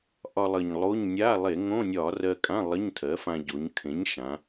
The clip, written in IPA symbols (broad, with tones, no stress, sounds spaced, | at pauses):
ʔ ɒ˧ lˠ ə˨˩ ɲ lˠ o˧˥˧ ɲ nʲ a˧˥˧ lˠ e˧˩˧ ŋ õ˧˥˧ nʲ ɒ˧˩˧ r ɜ˧ kʼ ã˧˥˧ lˠ ə˧˥˧ ɲ tʰ ɜ˩˥ f ã˧ ɟ o˩˧ ɲ kʰ ẽ˩˥ ɲ ʃ ã˩˧